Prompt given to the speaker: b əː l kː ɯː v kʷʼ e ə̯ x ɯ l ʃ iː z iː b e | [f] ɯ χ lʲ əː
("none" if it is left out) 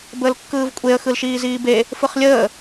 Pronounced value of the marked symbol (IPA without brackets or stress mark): f